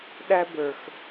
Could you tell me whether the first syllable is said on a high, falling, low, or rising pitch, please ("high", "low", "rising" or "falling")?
high